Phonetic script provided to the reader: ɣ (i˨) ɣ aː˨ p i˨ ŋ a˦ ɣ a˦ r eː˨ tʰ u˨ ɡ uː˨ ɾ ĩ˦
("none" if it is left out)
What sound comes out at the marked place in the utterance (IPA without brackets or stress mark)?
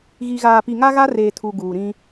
i˨